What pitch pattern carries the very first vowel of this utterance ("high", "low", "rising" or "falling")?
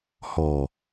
low